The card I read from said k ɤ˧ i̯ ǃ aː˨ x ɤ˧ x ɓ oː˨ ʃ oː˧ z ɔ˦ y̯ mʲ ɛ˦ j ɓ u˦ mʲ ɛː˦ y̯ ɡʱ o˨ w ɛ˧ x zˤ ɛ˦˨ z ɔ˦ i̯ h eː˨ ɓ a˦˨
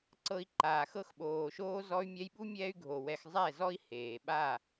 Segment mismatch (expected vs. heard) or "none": k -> ǀ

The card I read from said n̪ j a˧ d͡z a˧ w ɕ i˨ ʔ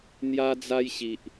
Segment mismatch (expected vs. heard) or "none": w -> j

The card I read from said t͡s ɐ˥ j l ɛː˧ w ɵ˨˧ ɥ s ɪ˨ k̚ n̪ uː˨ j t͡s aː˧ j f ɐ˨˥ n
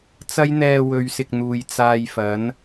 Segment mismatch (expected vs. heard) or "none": l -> n̪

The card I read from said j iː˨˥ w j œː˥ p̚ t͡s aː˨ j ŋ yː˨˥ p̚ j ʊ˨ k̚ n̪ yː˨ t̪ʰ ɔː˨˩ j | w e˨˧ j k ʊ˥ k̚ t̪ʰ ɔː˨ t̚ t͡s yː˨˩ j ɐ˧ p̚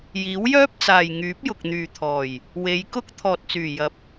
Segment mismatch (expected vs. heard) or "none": none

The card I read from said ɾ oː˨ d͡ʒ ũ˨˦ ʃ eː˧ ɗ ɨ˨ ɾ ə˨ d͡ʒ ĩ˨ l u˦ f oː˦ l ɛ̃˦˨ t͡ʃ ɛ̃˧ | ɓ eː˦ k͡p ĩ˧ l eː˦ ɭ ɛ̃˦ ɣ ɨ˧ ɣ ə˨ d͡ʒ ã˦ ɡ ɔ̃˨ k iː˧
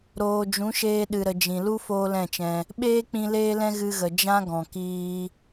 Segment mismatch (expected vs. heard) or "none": ɭ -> l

